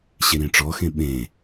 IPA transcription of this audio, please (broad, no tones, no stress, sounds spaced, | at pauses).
ɕ e ɾ ĩ ʈ͡ʂ ɔ x ẽ ɓ ẽː